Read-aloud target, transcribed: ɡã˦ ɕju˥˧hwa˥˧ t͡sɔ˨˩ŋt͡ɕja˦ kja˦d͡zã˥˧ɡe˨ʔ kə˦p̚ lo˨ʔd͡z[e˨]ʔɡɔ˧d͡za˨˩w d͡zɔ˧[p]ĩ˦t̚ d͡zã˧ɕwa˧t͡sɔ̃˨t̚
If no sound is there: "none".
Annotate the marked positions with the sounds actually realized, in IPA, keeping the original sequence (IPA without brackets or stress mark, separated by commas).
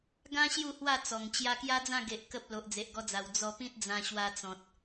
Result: e˨, p